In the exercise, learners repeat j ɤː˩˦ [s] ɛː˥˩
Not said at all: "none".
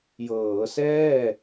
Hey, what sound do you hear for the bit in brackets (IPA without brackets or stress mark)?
s